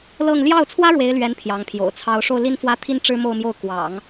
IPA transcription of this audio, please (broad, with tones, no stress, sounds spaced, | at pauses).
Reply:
l ɤ˥˧ ŋ l j ɑ˥˩ ʊ̯ t͡sʰ w ä˥ ɻ w e˧˥ ɪ̯ l ɥ ɛ˧˥ n pʰ j ɑ˧˥ ŋ pʰ j o̰˨˩ ʊ̯ t͡sʰ ɑ˥ ʊ̯ ʂ o˥˩ ʊ̯ l i˥ n f w ä˥ t̪ʰ i˥ n ʈ͡ʂ ɻ̩˥ m o˥˧ ʊ̯ m j o˥˩ ʊ̯ k w ɑ̰˨˩˦ ŋ